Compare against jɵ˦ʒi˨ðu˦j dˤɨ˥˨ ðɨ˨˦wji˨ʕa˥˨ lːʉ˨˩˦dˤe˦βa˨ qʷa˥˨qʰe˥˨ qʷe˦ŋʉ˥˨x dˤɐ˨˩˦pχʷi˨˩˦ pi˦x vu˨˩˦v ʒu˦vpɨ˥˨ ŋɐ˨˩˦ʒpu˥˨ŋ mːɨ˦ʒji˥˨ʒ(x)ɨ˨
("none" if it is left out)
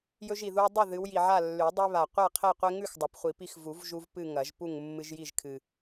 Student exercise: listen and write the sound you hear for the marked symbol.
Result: kʰ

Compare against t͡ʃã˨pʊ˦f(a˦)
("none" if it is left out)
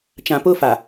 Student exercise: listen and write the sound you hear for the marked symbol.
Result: a˨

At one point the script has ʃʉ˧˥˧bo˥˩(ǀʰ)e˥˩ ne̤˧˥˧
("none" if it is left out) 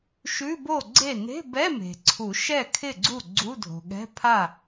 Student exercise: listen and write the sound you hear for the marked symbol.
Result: ɡ͡ǀ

